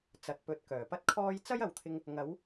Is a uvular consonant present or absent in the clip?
absent